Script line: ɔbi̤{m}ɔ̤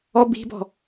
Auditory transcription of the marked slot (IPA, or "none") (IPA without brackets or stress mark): b